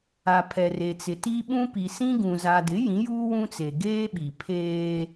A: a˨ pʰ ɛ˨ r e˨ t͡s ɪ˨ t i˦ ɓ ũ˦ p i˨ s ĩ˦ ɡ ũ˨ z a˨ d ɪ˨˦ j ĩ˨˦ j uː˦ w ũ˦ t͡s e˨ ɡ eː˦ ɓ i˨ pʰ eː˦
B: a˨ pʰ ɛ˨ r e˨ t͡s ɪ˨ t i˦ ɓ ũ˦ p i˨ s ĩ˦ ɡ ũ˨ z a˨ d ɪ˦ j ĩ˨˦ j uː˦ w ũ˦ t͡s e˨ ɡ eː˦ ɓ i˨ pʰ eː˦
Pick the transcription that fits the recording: A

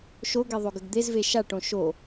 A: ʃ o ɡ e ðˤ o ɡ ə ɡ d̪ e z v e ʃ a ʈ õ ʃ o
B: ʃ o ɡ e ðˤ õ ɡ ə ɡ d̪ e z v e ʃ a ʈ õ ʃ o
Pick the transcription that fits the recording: A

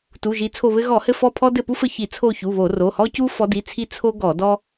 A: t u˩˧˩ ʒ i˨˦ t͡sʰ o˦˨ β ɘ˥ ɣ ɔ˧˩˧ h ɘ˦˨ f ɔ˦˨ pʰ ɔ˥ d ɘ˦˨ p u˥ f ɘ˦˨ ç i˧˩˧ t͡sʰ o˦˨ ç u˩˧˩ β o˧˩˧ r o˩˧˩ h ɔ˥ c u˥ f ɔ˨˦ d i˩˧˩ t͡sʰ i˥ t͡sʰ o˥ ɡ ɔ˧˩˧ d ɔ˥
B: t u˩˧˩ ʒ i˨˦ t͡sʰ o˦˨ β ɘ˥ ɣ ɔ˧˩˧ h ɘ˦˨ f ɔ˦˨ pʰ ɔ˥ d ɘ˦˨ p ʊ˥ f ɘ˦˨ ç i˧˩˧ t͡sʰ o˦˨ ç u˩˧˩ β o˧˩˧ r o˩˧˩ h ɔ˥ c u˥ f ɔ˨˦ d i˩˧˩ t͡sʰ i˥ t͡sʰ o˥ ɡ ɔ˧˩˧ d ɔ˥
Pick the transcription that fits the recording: A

